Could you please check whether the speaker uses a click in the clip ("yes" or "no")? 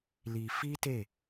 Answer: no